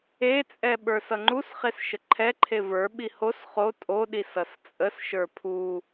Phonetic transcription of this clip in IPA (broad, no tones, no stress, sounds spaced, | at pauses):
e t͡sʼ ɛ ɓ ə˞ s ʌ ŋ͡ǃ u s χ e s ʃ ə ǃʰ ɛ ǃʰ e v ə˞ ɓ i h o s χ o tʼ o ɗ i s ʌ s t͡sʼ ə s ʃ ə˞ pʰ u